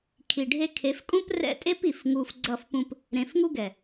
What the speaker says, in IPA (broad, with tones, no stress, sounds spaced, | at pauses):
kʰ i˨ ɖʱ e˧ kʰ e˨˦ f kʼ ũ˦ p r ɛ̰˦ tʼ e˦ p i˨ f ŋ u˧ f ɡ͡ǀ ʌ˦˨ f p ũ˦ p | ɾ ẽ˨ f ŋ u˦ ɡ ɛ˨